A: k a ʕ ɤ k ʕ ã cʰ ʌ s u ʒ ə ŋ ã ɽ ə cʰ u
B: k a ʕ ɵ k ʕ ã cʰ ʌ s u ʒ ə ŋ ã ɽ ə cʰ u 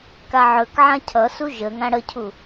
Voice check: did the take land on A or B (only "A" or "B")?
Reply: B